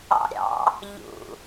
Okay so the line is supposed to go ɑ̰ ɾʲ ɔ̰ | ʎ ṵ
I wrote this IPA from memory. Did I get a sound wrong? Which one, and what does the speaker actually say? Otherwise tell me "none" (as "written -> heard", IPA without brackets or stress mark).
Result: ɔ̰ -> ɑ̰